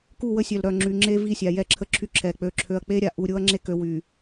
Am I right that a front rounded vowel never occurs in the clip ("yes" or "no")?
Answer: no